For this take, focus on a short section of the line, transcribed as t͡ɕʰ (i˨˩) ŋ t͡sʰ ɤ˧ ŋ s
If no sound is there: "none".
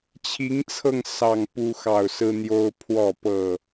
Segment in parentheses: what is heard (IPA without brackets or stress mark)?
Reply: i˨˦